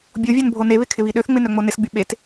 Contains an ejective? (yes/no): no